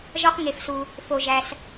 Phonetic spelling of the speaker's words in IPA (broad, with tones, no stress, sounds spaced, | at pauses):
ʒ ɒ˧ χ ŋ e˩ f s u˩ | f o˩ ʒ æ˩ s